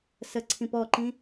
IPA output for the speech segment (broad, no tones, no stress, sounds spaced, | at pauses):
s ə ǀʰ ĩ p ɔ ǃ ĩ